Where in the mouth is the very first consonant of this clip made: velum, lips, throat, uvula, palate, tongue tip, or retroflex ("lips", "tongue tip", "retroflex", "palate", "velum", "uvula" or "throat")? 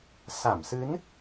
tongue tip